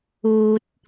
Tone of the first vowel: low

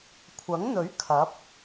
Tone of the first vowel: rising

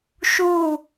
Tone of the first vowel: falling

